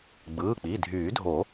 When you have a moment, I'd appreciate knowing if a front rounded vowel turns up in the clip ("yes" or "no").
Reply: yes